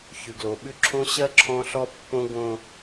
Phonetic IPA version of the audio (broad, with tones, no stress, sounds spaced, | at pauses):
ç ʉ˨ ɡ l o˨ ɓ ʉ˦ ǁʰ õ˦ ɕ ɜ˦ ǁʰ ɔ̃˦ ɬ ɔ˦ pː õ˦ ɡ õ˦